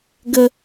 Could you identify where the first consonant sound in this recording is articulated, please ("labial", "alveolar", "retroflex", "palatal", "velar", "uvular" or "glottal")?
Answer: velar